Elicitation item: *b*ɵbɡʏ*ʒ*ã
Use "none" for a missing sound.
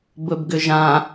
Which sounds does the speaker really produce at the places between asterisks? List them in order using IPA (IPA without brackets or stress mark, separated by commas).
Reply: b, ʒ